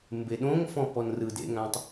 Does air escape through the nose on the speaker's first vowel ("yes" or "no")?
no